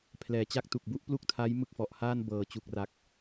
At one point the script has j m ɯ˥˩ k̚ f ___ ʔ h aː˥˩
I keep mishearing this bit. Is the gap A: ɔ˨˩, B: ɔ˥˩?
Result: A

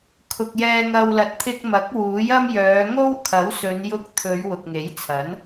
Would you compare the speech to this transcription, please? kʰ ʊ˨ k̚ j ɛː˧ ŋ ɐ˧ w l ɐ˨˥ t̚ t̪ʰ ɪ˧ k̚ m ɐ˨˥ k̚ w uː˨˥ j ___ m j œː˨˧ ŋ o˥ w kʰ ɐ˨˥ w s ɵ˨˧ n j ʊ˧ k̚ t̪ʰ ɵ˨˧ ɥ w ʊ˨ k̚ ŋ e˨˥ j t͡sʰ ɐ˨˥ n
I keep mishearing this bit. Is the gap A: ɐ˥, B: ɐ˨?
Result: A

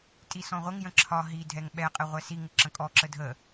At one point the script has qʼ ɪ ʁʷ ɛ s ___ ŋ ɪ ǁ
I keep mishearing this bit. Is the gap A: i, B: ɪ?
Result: A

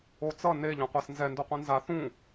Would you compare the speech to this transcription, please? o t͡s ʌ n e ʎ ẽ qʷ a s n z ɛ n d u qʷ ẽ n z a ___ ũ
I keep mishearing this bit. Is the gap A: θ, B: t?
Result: A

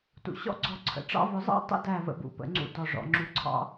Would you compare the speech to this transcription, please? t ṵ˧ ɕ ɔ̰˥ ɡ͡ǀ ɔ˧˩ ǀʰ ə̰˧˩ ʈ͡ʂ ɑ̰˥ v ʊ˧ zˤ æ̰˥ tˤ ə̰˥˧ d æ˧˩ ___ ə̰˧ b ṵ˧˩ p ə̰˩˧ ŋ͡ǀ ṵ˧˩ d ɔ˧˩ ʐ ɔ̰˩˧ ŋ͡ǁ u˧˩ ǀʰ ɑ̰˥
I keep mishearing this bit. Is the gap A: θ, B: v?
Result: B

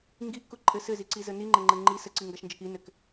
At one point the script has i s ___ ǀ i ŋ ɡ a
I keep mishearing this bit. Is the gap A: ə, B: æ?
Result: A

